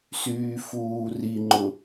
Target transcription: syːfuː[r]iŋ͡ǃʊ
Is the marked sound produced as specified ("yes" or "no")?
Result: yes